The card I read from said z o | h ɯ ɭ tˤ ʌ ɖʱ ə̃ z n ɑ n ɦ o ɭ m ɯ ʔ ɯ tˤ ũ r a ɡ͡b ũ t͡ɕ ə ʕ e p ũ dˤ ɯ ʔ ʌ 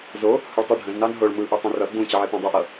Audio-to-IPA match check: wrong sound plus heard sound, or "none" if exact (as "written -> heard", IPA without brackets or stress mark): a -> ʌ